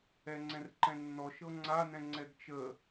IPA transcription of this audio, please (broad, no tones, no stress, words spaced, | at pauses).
ɛŋ͡ǀɛ̃rǃɛ̃nːɔ ʃɤŋ͡ǀa nɛ̃ŋ͡ǀɛɡt͡ʃə